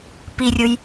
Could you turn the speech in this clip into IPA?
pirʲʊj

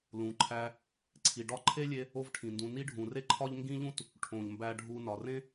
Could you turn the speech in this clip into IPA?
lũ˩ǃʰæ˧ | ǀʰi˩ɖɒ˥ ǃʰe˥lʲe˧ | o˥vʈʰĩ˩ndũ˧ ni˥ɖʱũ˩ re˥ǃʰɒ˥ʎ ŋɡĩ˥ʎũ˥t | ʈʰõ˩ʎmbæ˧ɖʱu˧ nɒ˩rẽ˥

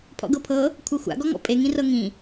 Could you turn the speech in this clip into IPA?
pʰɔ̰ɡɤpʰɤ | kʷʰɤxʷa̰ ɡɔŋɔ̰pʼe ŋĩrɤŋĩ

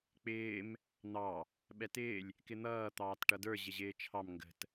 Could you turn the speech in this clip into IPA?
k͡pɪːm | n̪ɑ | ɓɛtɪːlʲ | kɪn̪ʌː t̪ɑːtʈʌdə˞ ʑɪʑɪːt͡ʃʰɑm ŋɡə̤t

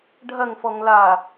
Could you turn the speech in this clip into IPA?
ɖʱɐŋfɔŋ la

